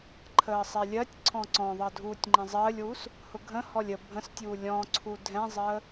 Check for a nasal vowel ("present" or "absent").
present